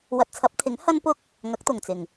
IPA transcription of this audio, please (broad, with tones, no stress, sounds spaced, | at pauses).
w ɐ˨ t̚ t͡sʰ ɐ˨˥ p̚ t̪ʰ ɪ˨˥ ŋ h ɐ˥ n p ʊ˥ k̚ | ŋ ɐ˨˥ k̚ t̪ ʊ˨˩ ŋ t͡s ɪ˨˩ ŋ